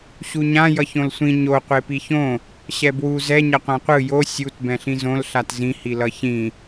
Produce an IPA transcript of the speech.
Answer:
ɕ u ɲ ã j ʌ ç õ l sʷ ĩ ɲ o qʷ e p i ç õ | ɕ ɛ b w u z ɛ ɲ ʌ qʷ ã qʷ ɯ j o sʲ u t b ɛ̃ ɬ ĩ z õ l ɬ a t z ĩ h i l ʌ ç ĩ

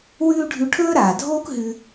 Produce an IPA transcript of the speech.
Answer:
w ʉː˥ ɖʱ ʉ˧ ʈʰ ɵː˥ ɾ aː˩ dʱ oː˥ k ɦ ʉ˧

